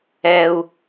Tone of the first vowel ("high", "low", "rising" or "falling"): low